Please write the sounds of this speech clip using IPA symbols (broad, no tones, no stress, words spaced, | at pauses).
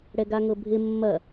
ɽɛɡaŋɤbʱɪ mːɐ